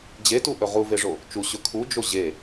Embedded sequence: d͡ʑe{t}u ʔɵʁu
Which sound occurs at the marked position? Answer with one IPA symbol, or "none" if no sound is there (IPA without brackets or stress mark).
t